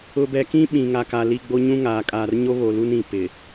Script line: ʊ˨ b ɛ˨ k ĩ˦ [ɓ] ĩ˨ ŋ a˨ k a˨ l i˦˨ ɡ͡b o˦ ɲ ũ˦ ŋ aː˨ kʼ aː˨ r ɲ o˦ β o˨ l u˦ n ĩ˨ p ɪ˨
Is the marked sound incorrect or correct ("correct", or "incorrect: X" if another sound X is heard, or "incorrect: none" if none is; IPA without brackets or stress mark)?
correct